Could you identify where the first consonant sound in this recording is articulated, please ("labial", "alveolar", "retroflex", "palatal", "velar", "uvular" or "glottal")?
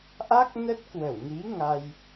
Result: glottal